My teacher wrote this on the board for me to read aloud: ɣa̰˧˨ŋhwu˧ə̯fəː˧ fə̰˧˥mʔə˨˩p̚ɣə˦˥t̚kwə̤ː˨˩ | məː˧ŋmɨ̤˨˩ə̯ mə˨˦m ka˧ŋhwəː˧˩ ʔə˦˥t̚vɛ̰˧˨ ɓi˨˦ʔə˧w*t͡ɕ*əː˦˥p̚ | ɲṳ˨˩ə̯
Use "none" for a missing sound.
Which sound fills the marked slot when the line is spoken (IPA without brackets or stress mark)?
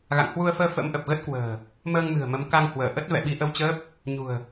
t͡ɕ